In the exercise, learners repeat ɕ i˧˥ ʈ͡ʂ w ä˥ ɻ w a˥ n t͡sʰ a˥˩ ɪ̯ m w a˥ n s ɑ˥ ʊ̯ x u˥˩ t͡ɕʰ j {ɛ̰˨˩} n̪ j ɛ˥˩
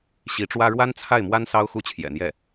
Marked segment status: correct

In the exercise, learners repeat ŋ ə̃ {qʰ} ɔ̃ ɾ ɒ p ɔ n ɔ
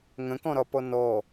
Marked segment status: incorrect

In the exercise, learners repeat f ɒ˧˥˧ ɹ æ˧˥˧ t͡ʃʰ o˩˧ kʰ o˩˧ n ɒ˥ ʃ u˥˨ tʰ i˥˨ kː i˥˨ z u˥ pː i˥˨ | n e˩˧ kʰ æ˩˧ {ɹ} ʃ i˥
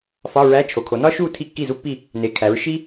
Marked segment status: correct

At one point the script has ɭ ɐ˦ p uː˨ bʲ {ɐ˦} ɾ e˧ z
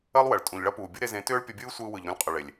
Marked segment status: correct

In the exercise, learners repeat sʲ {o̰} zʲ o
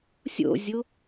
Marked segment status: correct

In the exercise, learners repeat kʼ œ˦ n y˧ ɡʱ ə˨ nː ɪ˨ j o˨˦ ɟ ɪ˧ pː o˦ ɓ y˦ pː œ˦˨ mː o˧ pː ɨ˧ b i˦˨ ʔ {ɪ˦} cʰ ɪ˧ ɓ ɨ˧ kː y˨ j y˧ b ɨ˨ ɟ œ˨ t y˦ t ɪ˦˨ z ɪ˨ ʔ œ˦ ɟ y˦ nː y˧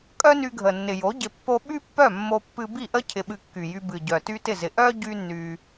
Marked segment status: incorrect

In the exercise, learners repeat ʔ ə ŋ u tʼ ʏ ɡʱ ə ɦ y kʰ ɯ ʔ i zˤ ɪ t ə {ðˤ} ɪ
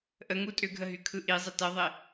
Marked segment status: correct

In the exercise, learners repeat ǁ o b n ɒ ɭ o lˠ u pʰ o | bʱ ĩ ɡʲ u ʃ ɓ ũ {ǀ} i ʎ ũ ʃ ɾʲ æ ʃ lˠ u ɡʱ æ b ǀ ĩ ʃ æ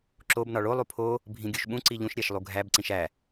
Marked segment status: correct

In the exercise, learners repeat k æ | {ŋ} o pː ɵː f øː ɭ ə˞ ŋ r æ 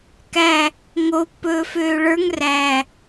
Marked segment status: correct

